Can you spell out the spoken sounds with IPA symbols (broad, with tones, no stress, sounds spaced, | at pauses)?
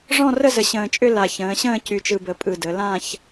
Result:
ʐ ɔ̃˥˧ r ə˥˧ z ə˨˩ ɕ ə̃ː˨˩ t͡ʃʼ ʏ˥˧ l a˨˩ ç ə̃ː˩˧ ɕ ə̃ː˥˧ c y˨˩ t͡ʃ ɯ˨˩ b ə˩˧ pʼ ɯ˨˩ d ə˩˧ l ã˥˧ ç